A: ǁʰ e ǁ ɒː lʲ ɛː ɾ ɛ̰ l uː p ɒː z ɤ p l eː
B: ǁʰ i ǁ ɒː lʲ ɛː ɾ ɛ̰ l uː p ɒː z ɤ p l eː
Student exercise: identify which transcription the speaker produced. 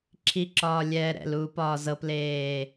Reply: B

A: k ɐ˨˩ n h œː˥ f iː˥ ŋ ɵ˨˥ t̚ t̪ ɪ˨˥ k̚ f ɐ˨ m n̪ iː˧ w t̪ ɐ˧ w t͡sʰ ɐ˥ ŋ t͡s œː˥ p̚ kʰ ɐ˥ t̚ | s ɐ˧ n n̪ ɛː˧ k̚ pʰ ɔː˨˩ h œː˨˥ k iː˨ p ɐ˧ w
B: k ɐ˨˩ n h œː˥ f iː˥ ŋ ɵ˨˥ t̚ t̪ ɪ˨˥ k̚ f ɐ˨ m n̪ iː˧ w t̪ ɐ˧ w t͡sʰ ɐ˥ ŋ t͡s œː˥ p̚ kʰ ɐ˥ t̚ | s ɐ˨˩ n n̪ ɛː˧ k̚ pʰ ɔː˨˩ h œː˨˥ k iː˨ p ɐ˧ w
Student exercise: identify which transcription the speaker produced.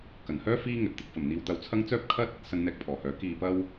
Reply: A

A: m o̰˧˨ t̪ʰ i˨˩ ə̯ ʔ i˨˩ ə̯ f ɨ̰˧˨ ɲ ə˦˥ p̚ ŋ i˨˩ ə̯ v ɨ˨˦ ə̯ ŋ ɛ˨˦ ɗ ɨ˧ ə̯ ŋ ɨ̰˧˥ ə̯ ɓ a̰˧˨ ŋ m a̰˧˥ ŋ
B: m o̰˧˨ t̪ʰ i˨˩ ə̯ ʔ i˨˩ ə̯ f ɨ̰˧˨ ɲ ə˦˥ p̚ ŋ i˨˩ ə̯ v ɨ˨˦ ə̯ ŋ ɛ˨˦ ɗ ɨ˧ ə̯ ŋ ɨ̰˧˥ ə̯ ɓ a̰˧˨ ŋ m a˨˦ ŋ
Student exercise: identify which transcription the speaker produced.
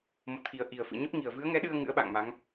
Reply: B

